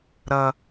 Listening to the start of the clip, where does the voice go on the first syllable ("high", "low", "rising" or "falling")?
high